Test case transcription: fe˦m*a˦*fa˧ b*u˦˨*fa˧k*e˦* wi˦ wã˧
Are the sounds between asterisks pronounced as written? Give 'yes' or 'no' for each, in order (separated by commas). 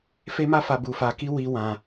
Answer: yes, no, no